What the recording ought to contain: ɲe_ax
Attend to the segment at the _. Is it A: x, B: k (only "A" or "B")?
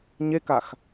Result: B